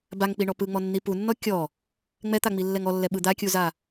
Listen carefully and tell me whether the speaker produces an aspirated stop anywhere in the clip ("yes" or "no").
no